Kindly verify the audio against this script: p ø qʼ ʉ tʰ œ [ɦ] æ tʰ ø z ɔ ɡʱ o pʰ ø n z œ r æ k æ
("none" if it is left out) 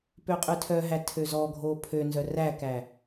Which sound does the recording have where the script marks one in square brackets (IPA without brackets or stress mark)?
ɦ